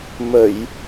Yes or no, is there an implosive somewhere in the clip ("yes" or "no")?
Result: no